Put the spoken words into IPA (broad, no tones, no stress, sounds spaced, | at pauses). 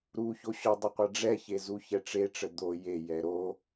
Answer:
ɾ u ç o ɕ ɔ dˤ ə qʷ a ɖ͡ʐ ɛ ç e z u ç ɛ ʈ͡ʂ e ʈ͡ʂ ə d̪ o j e j ɛ ɾ o